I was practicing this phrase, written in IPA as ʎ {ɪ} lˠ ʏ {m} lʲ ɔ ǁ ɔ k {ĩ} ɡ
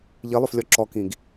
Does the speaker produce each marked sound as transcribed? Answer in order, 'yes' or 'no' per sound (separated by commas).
no, no, yes